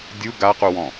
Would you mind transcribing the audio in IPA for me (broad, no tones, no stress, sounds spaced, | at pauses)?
dʲ u ɡ a q u w ɔ̃